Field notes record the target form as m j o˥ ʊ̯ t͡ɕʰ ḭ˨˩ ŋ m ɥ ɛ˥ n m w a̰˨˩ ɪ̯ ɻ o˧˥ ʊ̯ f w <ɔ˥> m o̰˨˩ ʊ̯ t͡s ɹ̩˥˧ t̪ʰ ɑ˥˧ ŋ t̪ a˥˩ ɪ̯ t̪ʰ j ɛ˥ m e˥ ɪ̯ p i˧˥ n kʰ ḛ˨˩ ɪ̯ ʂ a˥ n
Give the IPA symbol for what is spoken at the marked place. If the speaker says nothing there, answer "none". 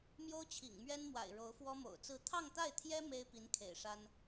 ɔ˥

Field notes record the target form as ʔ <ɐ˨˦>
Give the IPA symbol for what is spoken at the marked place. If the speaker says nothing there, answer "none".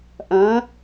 ɐ̃˨˦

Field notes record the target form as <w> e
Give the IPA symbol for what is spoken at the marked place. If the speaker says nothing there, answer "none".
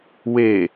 w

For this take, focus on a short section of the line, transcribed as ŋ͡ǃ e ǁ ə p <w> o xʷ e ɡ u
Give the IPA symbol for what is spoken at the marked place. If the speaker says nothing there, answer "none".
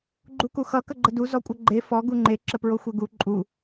ɹ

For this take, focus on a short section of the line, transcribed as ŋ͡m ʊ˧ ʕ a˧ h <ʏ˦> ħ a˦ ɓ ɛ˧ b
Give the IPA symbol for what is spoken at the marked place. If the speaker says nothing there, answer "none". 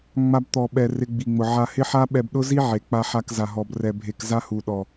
ɪ˦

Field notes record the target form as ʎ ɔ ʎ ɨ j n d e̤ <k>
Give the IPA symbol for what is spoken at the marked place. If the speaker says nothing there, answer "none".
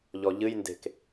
k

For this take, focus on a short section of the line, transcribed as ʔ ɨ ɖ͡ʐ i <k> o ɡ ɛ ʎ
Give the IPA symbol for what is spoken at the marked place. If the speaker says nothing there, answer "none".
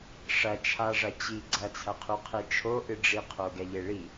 qʰ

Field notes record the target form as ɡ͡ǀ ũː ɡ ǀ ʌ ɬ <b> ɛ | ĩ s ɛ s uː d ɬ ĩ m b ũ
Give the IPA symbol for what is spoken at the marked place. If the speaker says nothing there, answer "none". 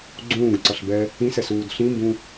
b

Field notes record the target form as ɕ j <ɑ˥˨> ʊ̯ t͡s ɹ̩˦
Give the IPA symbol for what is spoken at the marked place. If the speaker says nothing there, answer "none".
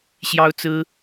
ɑ˦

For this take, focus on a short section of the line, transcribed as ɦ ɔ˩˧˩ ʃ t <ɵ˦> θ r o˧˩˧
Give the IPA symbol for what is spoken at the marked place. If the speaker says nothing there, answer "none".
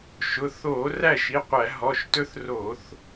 ɵ˦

